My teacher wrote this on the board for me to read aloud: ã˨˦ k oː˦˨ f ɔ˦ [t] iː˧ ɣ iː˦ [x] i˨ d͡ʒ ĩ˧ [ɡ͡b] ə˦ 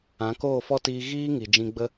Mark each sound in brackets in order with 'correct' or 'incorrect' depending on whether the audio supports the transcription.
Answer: correct, incorrect: ŋ, correct

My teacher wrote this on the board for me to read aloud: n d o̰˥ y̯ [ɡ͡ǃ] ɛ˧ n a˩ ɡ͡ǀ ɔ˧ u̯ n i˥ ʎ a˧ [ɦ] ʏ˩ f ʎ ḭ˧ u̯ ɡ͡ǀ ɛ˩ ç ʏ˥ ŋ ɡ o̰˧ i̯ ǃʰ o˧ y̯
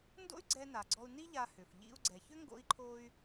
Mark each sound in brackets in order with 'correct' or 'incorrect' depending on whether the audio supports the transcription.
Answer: incorrect: ɡ͡ǀ, incorrect: h

